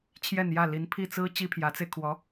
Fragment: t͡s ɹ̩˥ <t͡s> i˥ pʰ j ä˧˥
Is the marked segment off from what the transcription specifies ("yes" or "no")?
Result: yes